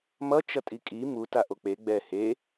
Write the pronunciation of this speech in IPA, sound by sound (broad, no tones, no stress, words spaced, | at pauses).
mʌ t͡ʃʌtʼikʼi mu taʔok͡pe ɡ͡bɛ he